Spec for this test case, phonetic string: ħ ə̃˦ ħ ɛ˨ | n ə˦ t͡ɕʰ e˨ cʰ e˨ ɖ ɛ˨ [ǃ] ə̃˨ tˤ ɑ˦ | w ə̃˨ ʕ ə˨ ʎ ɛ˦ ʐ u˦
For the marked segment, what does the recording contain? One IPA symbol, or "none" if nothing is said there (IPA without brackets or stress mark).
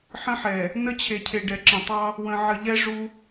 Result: ǁ